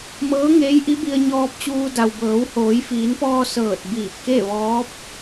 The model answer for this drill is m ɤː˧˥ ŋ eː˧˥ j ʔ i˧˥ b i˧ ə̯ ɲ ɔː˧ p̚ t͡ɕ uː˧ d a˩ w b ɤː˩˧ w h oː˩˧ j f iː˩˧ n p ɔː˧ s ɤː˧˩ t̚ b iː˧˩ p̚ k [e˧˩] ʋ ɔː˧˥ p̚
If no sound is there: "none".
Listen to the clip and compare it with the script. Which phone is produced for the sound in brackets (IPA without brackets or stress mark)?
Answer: e˥˨